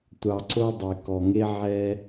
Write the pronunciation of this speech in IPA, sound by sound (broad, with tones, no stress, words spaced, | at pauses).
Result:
tʷɑ˧ ǀo˦dˤe˧kɔ˧ŋe˦ ʕɛ˧